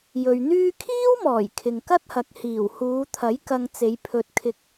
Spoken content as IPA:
j ɵ˨ ɥ n̪ yː˥ kʰ iː˥ w m ɔː˨˩ j kʰ ɪ˨ ŋ k ɐ˥ t̚ h ɐ˨ k̚ h iː˨˩ w h uː˨˧ t̪ʰ ɐ˨˥ j k ɐ˧ ŋ t͡s e˨˧ j pʰ ɵ˧ t̚ kʰ ɪ˧ k̚

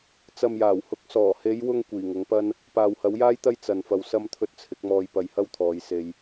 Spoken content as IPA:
t͡s ɐ˨ m j aː˨˩ w h ʊ˨˥ k̚ s ɔː˨˩ h e˨˧ j w ʊ˧ ŋ kʷ iː˨˩ ŋ ʊ˨˥ ŋ p ɐ˥ n | p aː˨ w h ɐ˨˥ w j aː˥ j t̪ ɐ˥ j t͡s ɐ˧ n f ɐ˧ w s ɐ˥ m t̪ʰ ɵ˧ t̚ t͡sʰ ɪ˨˥ k̚ m ɔː˧ j p ɐ˧ j h ɐ˥ w t̪ʰ ɔː˨˧ j s e˥ j

